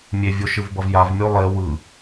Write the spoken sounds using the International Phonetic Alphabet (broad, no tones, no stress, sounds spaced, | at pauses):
mʲ e vʲ o ʃ ɯ v b ʌ v j a v mʲ o lˠ e w ɯ